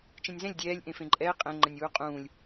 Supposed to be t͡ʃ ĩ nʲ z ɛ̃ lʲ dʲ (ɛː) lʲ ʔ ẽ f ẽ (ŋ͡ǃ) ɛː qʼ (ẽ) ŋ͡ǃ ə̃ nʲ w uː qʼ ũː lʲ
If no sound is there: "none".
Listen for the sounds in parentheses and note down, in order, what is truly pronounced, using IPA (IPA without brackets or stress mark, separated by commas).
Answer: ɛː, ǃʼ, ɛ̃